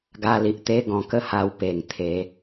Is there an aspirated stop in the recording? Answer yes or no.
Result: yes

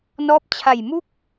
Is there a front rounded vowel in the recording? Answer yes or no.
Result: no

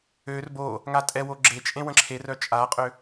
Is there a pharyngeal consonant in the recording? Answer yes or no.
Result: no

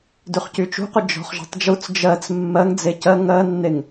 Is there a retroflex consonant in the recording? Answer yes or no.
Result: no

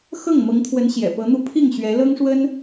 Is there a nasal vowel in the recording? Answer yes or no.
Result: no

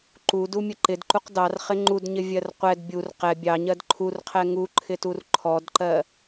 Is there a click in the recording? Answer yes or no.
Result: yes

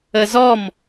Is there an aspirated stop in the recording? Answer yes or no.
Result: no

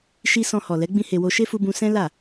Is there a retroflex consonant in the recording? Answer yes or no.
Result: no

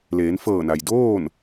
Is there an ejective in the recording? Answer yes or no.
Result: no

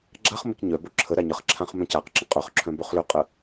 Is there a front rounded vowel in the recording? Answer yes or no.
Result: yes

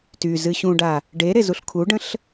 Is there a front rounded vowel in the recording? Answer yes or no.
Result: yes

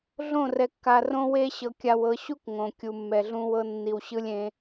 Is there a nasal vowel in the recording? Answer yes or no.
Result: yes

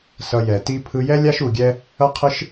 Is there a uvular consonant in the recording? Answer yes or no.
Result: yes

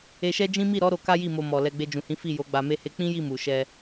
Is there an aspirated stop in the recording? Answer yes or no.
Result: no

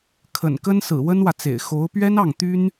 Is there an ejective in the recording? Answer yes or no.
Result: no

